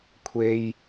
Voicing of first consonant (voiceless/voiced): voiceless